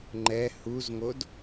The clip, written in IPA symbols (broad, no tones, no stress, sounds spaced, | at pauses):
ŋ͡ǃ ɛ h u z ŋ o d